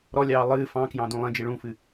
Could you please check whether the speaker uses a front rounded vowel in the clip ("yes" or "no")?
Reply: no